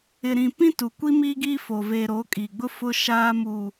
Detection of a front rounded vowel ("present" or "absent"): absent